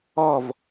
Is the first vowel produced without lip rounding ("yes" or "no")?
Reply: no